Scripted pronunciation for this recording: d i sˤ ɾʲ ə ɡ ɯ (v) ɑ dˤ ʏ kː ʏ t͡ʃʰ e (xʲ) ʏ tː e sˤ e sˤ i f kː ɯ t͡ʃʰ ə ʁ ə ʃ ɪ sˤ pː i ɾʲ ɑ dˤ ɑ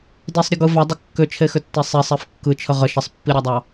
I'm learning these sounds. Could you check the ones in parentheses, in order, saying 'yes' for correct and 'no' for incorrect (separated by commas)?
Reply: yes, no